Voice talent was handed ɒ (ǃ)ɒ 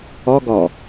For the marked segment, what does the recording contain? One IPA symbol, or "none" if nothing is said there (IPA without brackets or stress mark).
ɡ